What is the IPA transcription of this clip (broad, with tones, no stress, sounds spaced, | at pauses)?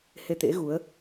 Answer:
h e˧ t̪ ḛ˧˥ ɣ u˨˦ ə̯